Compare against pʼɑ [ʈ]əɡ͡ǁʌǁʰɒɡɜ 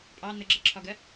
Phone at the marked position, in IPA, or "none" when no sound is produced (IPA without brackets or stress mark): n̪